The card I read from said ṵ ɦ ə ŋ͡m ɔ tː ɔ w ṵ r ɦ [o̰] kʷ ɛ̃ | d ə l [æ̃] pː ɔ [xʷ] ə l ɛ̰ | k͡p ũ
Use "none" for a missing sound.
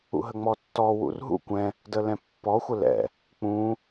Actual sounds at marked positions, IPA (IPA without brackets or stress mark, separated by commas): ṵ, ɛ̃, xʷ